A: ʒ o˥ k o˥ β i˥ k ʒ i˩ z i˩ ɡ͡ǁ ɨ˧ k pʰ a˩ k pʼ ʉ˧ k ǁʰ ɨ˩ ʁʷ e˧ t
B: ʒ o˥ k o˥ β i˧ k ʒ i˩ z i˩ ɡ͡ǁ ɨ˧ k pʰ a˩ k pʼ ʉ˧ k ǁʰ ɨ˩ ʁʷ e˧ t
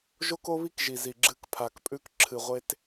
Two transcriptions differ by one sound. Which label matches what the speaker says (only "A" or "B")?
A